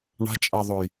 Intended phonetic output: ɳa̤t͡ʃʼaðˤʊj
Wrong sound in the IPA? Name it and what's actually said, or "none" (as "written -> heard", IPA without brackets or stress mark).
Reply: none